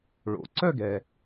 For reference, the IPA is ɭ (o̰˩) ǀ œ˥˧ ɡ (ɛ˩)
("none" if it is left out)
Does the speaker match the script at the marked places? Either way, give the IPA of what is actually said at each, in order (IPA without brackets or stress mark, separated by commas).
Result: o̰˩, ɛ˩